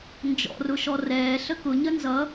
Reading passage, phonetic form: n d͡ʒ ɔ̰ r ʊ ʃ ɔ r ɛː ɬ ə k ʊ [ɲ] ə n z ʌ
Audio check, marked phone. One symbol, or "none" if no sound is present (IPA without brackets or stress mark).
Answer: ɲ